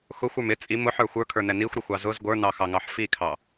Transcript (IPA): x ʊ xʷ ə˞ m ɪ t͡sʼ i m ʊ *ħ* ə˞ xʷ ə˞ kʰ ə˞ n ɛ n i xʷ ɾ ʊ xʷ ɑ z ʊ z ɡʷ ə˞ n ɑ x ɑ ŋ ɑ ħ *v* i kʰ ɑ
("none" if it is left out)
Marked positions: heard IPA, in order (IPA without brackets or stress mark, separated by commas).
ħ, f